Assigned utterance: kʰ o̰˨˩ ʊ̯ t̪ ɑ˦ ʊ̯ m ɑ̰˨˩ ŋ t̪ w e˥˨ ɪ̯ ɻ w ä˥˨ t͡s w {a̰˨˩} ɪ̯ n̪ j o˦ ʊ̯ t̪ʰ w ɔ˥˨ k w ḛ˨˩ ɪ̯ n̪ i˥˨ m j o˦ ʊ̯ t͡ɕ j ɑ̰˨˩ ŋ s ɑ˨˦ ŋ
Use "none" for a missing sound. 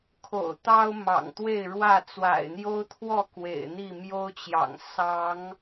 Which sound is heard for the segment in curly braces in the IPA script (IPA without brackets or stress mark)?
a̰˨˩